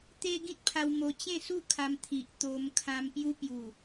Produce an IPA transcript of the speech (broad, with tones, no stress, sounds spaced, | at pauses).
t̪ e˦ ɡ ĩ˦ t̚ pʰ a˧ w m o˧ t͡ɕ ẽ˥˧ s u˥˧ kʰ a˧ m t̪ʰ i˨ ʔ t̪ o˧ m kʰ ã˧ m p j u˧ p j u˨˩